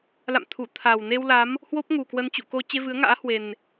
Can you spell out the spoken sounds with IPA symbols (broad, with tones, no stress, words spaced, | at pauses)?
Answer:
la̰˧˨mt̪ʰu˧˩ t̪ʰa˨˩wne˧wla˨˦m | hwo˦˥p̚ŋu˨˩kwə˧n t͡ɕṵ˧˨ko˧ t͡ɕe˧vɨ˨˦ə̯ŋa̰ː˧˥ hwe˨˩n